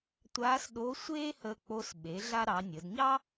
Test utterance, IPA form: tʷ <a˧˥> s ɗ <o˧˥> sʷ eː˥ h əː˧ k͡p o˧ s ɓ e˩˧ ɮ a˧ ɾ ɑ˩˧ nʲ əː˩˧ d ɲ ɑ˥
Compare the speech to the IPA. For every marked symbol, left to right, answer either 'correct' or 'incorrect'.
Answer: incorrect: aː˧˥, correct

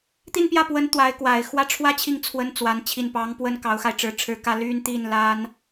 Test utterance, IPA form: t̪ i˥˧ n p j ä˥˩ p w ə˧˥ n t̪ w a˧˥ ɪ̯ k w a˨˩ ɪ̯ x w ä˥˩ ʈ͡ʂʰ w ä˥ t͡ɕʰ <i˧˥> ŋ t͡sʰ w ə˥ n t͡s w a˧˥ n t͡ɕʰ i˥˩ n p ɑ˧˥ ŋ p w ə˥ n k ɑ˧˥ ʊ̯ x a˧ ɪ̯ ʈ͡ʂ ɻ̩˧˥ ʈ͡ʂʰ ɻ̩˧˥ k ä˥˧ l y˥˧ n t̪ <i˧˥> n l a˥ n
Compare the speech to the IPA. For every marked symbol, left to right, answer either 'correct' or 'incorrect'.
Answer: incorrect: i˥˩, incorrect: i˥˩

